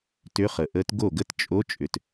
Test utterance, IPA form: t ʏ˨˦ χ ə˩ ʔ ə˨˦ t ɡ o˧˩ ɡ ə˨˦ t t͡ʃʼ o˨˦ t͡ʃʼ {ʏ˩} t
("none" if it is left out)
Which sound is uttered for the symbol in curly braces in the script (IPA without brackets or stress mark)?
ʏ˩